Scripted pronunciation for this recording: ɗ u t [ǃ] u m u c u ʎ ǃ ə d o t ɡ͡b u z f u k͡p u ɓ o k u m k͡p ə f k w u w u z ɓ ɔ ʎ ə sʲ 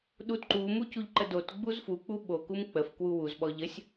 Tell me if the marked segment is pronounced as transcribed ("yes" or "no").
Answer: yes